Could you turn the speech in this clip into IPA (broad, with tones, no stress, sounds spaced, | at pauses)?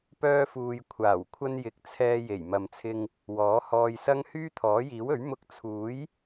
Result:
p œː˧ f uː˨ j kʷʰ aː˨˩ w kʷʰ ɐ˧ n j ɪ˨ k̚ t͡sʰ ɛː˧ j e˨˩ j m ɐ˨ m t͡sʰ ɪ˧ ŋ | w ɔː˨˥ h ɔː˧ j s ɐ˥ ŋ h yː˥ t̪ʰ ɔː˨˥ j iː˨˥ w ɵ˨˥ ɥ m ʊ˧ k̚ t͡sʰ uː˨˥ j